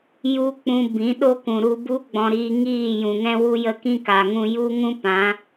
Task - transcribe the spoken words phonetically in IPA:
ju˦k͡pũ˧ bĩ˨˦ ɗo˦kũ˨ ɾu˧bu˦ ɡ͡bɔ̃˧ɾiː˧ ŋiː˦˨jũ˨ŋɛ̃˦wu˦ jə˦kĩ˦ka˨ŋũ˧ ju˦ŋũ˦ pã˨˦

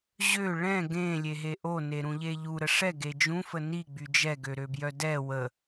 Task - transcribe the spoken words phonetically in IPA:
ʑø ɭɛ̃ ɡẽlʲeɦe ʔoneɾũʎe ʎuɾə ʂɛɡe d͡ʒũfə niɡ͡by d͡ʒɛɡøɾøbjœ dɛ wə

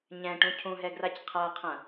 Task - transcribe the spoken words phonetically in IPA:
ɲɛ̃ʈũ cʰũɦɛɡrac qʰaqʰɐ̃

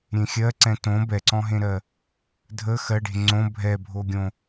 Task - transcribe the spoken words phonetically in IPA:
ɾʲẽxʲɜ ǀɛ̃tõ bɛǀɔ̃ɦẽɾɜ | dʱə xɜɖe̤ ŋ͡ǀõ bʱɛbʱoɡʲõ

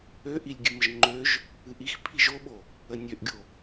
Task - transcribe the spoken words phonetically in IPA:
øʔilʲɡʲɨməʒ ŋ͡ǃøʒ | ɨʔix pʰiʒoɓo | ənʲøʔɡʲo

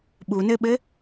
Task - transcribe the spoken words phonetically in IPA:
ɓunɘɓɘ

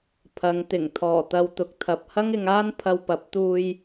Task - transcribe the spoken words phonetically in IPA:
pʰɐ˨˧ŋt̪ɪ˨˩ŋ t̪ʰɔː˨˩t̪ɐ˧wt̪ʊ˨k̚t̪ʰɐ˨p̚ hɐ˥ŋɪ˧ŋaː˥n pʰɐ˧wpɐ˨˥p̚t̪uː˧j

